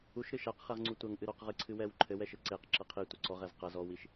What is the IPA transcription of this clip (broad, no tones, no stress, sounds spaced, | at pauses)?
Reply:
u ʃ ɾ ɨ ʃ a q χ ɛ ʁ ŋ͡ǀ u tʷ ɐ ŋ ʔ ɨ ɾ ɔ q ʁ ɨ ǀʰ ɨ w ɛ w ǃʰ ɘ w ɛ ʃ ɘ ǀ e q ǁ ɐ qʰ i tʷ ɐ ǀ ɔ ʁ ɛ z q ɐ z ɔ w i ʃ